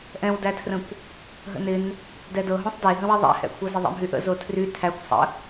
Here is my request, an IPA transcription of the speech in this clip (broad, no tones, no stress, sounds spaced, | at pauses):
ʔ ɛ̃ w d æ tʰ r ə̃ kʷ | ɦ ə̰ n ɪ n | d ɛ d ɤ ɦ õ sˤ d e ɦ ə̃ w i ðˤ æ̰ h ɛ̰ kʷʰ ɤ z ɪ ðˤ ɛ̰ m ɦ y ʔ ə̰ z o tʰ r y tʰ æ kʷ sˤ ə̰